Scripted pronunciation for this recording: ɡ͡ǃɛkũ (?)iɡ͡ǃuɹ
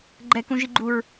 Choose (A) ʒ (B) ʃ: A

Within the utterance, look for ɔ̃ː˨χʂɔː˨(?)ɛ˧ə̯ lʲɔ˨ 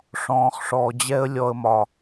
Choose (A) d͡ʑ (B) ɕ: A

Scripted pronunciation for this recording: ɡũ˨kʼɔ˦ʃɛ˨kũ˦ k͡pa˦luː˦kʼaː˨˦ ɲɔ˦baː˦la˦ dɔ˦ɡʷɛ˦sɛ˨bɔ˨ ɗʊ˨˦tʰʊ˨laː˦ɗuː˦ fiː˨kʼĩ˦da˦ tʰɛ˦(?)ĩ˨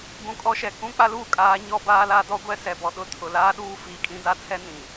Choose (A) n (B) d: A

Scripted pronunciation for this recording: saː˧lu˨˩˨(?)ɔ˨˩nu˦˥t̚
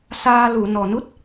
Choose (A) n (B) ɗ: A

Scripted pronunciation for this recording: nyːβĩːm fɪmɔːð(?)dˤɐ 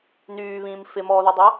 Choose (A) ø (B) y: B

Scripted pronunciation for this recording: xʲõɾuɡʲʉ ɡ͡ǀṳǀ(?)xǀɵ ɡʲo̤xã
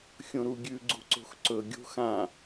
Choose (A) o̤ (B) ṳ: A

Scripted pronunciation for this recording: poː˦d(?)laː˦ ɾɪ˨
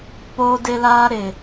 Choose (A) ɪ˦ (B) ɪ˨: A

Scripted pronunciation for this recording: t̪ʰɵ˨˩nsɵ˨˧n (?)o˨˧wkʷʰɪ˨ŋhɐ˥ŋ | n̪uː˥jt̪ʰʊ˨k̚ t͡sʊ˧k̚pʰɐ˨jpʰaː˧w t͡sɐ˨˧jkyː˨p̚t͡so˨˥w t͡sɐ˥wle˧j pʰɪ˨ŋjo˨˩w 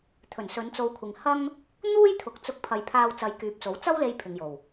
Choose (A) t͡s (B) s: A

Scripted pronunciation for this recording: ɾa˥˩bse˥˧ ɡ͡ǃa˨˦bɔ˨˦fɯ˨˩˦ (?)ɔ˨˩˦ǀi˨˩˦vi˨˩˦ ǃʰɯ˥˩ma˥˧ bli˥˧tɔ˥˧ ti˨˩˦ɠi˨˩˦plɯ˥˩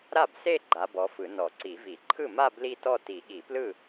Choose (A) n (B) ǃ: A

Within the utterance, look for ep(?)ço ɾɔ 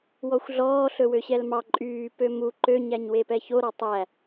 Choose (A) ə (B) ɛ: B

